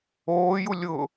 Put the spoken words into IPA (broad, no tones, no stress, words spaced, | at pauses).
oːju lʲʊ